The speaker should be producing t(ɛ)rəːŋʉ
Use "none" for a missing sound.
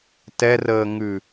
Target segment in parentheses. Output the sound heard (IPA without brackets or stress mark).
ɛ